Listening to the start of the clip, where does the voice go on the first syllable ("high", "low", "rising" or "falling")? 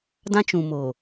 high